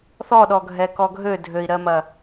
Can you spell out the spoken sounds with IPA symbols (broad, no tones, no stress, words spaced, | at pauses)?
θɔɗɔ ɡʱɛkɔɡʱø dʱøi̯ɾɜmɐ